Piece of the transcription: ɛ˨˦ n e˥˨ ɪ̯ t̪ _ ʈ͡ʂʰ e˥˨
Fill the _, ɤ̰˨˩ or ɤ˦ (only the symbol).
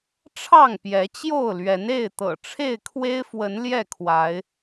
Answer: ɤ̰˨˩